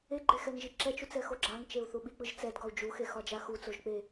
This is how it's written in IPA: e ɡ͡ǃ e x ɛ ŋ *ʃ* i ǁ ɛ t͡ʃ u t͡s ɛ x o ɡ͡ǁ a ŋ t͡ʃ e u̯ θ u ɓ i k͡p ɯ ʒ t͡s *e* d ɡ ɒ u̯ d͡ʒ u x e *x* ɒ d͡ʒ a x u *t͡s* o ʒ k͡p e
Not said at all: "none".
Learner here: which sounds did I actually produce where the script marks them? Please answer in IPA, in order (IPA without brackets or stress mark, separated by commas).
ʒ, ɛ, x, t͡s